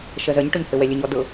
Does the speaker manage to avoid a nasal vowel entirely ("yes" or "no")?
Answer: yes